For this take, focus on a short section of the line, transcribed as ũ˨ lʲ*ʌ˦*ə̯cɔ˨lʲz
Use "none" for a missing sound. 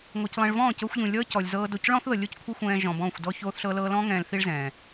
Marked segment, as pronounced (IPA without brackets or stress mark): ɔ˦